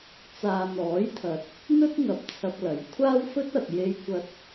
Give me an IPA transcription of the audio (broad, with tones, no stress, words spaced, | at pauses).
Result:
t͡saː˨n̪ɔː˨˥jt̪ʰɐ˨t̚ | n̪ɵ˥t̚ŋɐ˨˥p̚t͡sʰɐ˨p̚ lɐ˨˥j kʷʰaː˥wfɵ˥t̚ɐ˨t̚ je˧jkʷɐ˧t̚